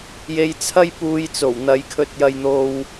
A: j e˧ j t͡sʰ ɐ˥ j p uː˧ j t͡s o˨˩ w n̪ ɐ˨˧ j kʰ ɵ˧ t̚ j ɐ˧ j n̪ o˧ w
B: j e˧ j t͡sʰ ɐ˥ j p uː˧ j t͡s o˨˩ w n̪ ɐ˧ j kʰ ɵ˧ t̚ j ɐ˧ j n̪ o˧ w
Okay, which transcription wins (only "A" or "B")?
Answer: A